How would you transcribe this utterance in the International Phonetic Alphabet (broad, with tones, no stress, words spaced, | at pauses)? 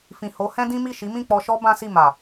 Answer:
fĩ˨ho˨˦ hɛ̃˦dĩ˦mi˦˨ ʃi˨˦mĩ˦˨k͡pɔ˧ʃɔ˦ bã˦si˦˨ma˨